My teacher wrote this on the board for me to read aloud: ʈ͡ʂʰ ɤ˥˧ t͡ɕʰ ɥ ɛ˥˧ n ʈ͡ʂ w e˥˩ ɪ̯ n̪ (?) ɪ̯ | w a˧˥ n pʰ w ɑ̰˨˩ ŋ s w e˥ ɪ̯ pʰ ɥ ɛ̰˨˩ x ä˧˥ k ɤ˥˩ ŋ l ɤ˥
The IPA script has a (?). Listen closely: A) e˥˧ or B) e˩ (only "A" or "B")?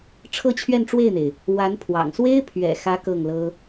B